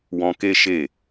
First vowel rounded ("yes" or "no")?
yes